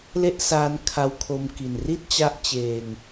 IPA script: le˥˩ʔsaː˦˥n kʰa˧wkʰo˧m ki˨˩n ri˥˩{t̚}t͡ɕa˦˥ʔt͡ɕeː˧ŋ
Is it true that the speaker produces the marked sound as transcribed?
yes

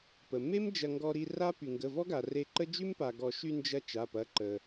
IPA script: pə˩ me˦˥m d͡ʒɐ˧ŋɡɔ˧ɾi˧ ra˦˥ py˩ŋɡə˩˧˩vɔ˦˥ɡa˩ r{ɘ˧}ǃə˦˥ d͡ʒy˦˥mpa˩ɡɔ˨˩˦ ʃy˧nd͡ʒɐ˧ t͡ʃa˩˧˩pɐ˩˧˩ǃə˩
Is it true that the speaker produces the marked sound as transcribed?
no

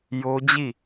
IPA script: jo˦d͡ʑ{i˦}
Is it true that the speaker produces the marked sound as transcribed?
no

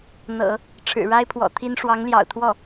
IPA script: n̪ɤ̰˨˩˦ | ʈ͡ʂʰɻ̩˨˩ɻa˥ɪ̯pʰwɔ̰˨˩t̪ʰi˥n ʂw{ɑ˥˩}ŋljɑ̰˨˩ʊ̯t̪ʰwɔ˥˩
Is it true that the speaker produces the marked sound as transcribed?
no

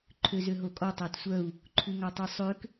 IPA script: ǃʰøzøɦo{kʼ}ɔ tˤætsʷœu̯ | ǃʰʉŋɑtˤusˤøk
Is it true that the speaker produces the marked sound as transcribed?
yes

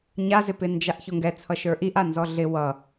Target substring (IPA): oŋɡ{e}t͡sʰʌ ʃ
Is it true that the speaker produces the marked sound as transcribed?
no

